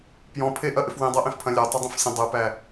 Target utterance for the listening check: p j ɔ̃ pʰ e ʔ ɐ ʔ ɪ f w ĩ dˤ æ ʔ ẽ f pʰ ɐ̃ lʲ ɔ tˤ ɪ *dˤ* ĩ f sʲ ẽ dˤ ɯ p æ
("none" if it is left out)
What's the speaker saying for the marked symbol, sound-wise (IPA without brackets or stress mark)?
dˤ